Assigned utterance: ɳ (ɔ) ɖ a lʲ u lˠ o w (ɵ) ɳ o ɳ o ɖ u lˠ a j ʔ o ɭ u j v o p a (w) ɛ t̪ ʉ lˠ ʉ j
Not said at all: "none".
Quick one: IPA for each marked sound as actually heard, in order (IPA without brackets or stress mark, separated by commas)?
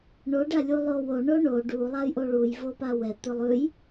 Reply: o, o, w